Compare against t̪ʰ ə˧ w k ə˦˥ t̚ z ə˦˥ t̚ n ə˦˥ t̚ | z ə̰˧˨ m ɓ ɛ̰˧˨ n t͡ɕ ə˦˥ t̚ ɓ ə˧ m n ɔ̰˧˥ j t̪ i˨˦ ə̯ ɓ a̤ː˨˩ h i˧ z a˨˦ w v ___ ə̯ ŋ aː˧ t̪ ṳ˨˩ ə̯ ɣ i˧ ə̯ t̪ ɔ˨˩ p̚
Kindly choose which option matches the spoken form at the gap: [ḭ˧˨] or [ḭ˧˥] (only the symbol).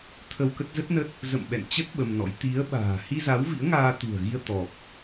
ḭ˧˥